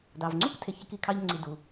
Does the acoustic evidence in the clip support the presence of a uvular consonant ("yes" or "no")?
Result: no